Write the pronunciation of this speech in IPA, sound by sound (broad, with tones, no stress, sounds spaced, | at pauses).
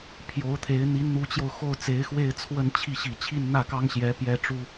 pʰ j o˧˥ ʊ̯ t̪ʰ e˧˥ ɪ̯ n̪ i˧˥ n n̪ u˧˥ t͡ɕ j o˧ ʊ̯ x o˥˩ ʊ̯ t͡s e˧˥ ɪ̯ x w e˥˧ ɪ̯ t͡sʰ w ə˥˧ n t͡ɕʰ i˥˩ ɕ i˨˩ t͡ɕʰ i˥˧ n n̪ ä˥˩ k ɑ˥ ŋ ɕ j ɛ˧˥ p j ɛ˥ ʈ͡ʂ u˥